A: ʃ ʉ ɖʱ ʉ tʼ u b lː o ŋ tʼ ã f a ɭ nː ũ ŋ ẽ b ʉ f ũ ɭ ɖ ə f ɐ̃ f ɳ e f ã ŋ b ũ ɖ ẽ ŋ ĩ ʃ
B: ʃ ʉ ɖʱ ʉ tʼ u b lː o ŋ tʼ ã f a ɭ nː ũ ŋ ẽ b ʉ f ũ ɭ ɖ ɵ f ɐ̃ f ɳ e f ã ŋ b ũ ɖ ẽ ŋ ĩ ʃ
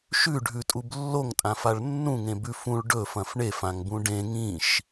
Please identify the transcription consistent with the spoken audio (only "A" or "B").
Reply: B